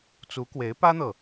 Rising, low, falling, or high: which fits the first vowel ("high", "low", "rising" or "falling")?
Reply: rising